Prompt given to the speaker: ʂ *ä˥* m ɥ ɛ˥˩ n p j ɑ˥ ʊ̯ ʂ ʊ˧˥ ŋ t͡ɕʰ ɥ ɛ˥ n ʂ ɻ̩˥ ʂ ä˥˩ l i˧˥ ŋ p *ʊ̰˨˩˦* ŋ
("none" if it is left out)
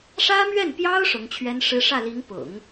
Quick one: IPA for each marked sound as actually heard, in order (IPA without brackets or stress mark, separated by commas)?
ä˥, ʊ̰˨˩˦